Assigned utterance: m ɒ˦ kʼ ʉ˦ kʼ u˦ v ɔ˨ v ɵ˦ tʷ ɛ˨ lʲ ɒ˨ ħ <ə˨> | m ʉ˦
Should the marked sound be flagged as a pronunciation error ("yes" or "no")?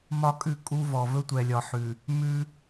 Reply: yes